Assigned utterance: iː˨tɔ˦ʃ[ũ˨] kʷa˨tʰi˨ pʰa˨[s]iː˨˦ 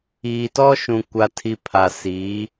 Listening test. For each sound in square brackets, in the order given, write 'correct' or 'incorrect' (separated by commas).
correct, correct